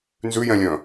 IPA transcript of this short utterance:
n z ʉ j ɛ̃ lʲ œ̃

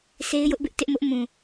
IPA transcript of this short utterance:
s e˦ ɪ̯ j ʊ˦ ʔ b ɪ˦ ʔ t ɪ˦ ʔ m ʊ˦ ʔ m ũ˨

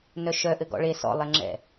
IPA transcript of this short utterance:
n œ ʃ œ ʔ ɘ ɡ ɔ̰ ɭ e s ɔ̰ lˠ e ŋ͡ǁ ɛ̰

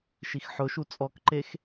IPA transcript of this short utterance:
ʃ i x ħ ʊ ʃ u t͡sʼ ɔ k ǃ e x

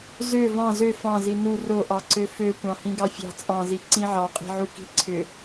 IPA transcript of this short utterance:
z ø v ɑ̃ z ø f ɑ̃ z i n u r o ʔ ɑ ǀ ø f ø kʷ ɑ̃ h ĩ ɡ ɑ fʲ ɑ̤ t͡sʼ ɑ̃ z i ǀ ĩ ʕ ɑ qʼ i̤ ʕ u k i̤ ǀʰ ʏ

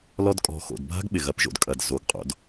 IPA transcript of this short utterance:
l ɔ˧ d kʼ ɔ̤˨ x o̰˨ d bʱ a̤˦ ɡ ɓ ɪ˨ ɣ ɐ˨˦ p ʒ o̰˨ d kʼ ɐ˨ d z o˨˦ ɡ qʼ o̰˧ d

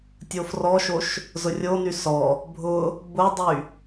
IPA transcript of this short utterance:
tʲ o f r ɔ ʃ o ʃ | z ʊ rʲ o n y s ɔ | bʱ ʊ | b ʊ dˤ y

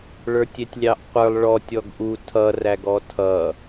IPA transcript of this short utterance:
ɭ ə˞ tʲ ɛ tʲ lʲ ɑ ʔ qʷ ə˞ lˠ ɭ ɔ tʲ ɔ ɡ ʔ u tʰ ʌ r æ ɡ ɔ tʰ ʌ

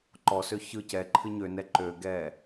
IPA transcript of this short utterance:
ǃ ɔ s ø ç ɯ c ɛ ǃʰ ɨ ɲ ø n ɛ ǃ ø ɡ ɛ

